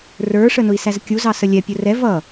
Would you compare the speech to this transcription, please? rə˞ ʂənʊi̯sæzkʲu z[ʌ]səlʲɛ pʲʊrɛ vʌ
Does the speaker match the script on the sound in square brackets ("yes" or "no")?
no